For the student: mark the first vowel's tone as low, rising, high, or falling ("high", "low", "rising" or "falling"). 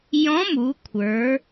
rising